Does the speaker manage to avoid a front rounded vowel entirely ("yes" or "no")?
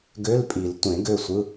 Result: no